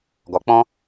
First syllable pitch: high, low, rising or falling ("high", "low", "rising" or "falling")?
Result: low